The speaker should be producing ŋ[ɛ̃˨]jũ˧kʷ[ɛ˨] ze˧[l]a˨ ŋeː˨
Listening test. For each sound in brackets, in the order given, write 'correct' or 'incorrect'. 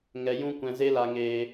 incorrect, incorrect, correct

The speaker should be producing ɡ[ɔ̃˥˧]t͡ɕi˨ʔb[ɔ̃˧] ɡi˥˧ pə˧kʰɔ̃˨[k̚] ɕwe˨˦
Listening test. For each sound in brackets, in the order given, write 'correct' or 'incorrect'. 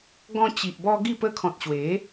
incorrect, incorrect, incorrect

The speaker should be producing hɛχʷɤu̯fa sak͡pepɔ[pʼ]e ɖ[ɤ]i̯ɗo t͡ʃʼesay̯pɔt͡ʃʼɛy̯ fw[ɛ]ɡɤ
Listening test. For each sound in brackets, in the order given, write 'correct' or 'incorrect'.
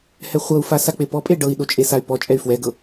correct, correct, correct

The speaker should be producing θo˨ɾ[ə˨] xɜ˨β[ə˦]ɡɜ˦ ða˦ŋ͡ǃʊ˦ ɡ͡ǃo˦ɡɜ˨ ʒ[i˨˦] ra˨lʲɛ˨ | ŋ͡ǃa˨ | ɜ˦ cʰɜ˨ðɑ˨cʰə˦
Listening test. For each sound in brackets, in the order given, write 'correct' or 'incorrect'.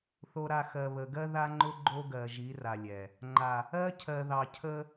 incorrect, incorrect, correct

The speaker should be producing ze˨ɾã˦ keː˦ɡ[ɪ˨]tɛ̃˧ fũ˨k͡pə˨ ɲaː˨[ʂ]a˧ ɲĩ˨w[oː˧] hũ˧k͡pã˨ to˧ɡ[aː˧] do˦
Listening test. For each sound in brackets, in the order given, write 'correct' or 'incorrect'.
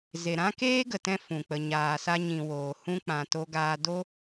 incorrect, incorrect, incorrect, correct

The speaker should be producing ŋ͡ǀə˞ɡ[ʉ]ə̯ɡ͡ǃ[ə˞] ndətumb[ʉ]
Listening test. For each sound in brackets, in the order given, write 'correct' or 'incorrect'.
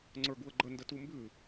incorrect, incorrect, correct

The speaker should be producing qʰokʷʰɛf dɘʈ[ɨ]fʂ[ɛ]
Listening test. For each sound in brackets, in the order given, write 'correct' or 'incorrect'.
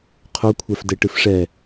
correct, correct

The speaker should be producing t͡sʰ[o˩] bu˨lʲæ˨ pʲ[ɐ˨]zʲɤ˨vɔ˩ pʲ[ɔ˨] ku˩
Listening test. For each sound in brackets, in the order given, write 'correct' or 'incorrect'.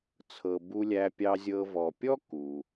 incorrect, incorrect, incorrect

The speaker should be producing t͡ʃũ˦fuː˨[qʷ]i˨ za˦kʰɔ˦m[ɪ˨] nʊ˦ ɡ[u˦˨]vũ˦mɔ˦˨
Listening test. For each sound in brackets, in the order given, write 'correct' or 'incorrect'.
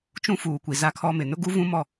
incorrect, correct, incorrect

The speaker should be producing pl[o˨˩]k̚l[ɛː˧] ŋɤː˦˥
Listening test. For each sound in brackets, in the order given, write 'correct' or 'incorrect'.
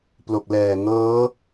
correct, incorrect

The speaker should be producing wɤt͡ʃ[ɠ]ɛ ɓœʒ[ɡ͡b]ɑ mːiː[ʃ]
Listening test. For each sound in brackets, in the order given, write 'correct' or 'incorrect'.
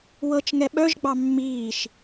incorrect, correct, correct

